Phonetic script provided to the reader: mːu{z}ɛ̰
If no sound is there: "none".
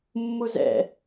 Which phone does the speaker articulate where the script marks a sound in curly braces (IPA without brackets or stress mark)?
z